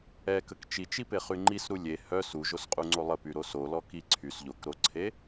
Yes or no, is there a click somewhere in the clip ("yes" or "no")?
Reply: yes